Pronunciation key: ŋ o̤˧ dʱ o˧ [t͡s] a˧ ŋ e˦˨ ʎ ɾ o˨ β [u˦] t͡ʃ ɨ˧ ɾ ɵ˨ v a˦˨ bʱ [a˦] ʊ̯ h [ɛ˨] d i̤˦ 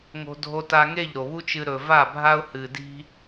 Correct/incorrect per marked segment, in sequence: incorrect: t, correct, correct, incorrect: ɨ˨

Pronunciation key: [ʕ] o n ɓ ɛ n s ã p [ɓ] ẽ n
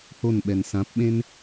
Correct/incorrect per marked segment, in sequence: incorrect: h, correct

